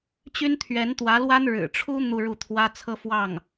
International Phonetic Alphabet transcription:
t͡ɕ y˥ n t̪ʰ ɥ ɛ˧˥ n t̪ w ä˧˥ l w a˥ n ɻ ɻ̩˨˩ ʈ͡ʂʰ u˥ n̪ u˥˧ ɻ u˥˩ t̪ʰ w ä˥ t͡sʰ ɤ˥ f w ɑ˥˩ ŋ

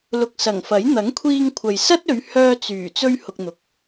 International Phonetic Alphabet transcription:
l ʊ˨ k̚ s ɐ˨˩ ŋ f ɐ˨˥ j n̪ ɐ˨˥ ŋ kʷʰ iː˧ ŋ kʷʰ ɐ˨ j s ɐ˥ t̚ ɵ˨˧ ɥ h œː˧ t͡s yː˨˩ t͡s ɵ˧ ɥ h ʊ˧ k̚ n̪ ʊ˨˥ k̚

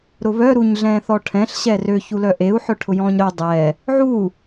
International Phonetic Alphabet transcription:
ɾ ʊ β œ ɾ u ɲ ɮ ɛ̃ː θ ɔ ʈʰ ɛ̃ ɬ ɕ ɛ r ø ç u l œ ʔ e u̯ ħ œ ʈʰ ʊ j ɔ̃ː ɲ ɾ œ dˤ ɛ | ʕ u

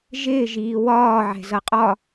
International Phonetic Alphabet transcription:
ʒ ɪː ʒ iː w ɒː ʕ ɛ̤ z ʌ qʼ ɒ

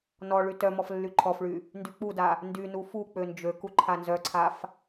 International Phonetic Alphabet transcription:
n ɔ ɭ y t œ m ɔ f lː y ǃʰ ɔ f ɭ y | n d y k͡p u d a | n d y n u f u k͡p ø n d͡ʒ ø k u ǃʰ a n z œ ǀʰ a f

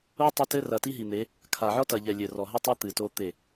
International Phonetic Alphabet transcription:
o˦ tˤ ɐ˦ t ɘ˦ r ɐ˨ t i˦ ɦ i˨ n̪ e˨˦ | kʰ a˨ ʕ ɔ˦ t ɐ˨ ʎ ɛ˨ lʲ ɘ˨ r ɔ˨ ɦ ɘ˦ tˤ ɐ˦ t̪ ɨ˨ t o˦ t̪ e˦˨

